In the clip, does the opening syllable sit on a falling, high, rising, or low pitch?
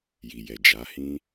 low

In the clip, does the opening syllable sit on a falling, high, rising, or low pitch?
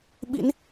rising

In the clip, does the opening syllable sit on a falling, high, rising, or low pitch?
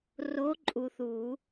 rising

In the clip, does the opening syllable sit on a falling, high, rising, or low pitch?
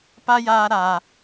high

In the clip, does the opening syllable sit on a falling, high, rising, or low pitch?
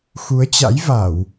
rising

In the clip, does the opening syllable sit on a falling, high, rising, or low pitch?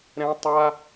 high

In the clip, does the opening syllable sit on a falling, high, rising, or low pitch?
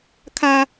high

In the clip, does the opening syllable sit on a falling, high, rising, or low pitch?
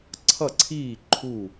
falling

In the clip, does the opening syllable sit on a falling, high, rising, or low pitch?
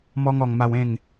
high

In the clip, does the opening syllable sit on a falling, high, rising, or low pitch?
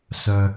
high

